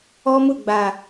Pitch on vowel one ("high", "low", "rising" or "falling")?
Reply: high